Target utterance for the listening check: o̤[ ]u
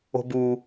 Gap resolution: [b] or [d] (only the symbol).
b